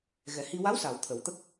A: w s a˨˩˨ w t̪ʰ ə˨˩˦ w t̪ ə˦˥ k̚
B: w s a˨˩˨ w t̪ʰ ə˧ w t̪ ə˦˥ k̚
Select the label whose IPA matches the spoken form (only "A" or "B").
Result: A